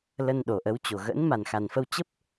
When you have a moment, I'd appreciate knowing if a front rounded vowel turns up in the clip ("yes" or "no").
no